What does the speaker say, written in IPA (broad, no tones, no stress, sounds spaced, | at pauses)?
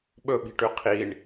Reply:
ɓ ɵ ɓ i̤ ʈ ʉ qʰ i ɳ